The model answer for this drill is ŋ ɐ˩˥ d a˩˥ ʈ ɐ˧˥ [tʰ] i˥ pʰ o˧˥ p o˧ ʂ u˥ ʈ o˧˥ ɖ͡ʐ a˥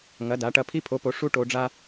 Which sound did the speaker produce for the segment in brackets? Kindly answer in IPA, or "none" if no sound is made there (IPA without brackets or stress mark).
pʰ